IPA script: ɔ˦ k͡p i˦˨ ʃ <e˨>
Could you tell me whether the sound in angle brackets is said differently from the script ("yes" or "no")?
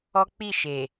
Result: no